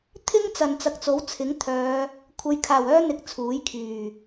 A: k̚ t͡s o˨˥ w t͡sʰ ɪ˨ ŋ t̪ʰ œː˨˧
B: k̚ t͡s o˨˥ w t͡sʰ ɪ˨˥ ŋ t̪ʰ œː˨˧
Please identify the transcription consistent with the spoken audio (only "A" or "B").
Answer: B